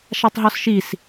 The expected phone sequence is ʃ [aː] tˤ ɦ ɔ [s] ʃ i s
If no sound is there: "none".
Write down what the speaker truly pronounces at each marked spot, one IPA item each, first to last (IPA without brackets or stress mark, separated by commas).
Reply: a, s